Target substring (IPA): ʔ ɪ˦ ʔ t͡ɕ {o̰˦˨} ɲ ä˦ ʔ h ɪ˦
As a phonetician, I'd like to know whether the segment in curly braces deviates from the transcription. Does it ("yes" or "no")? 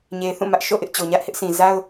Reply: yes